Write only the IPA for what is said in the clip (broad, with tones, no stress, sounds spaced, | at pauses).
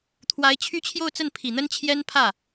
t̪ʰ w a˧˥ ɪ̯ t͡ɕʰ y˥ t͡ɕʰ j o˥˧ ʊ̯ t͡s ə˥˩ n pʰ i˨˩ n̪ ə˥ n t͡ɕʰ j ɛ˥ n pʰ ä˥˩